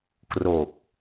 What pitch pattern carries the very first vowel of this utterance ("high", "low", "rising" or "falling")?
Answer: low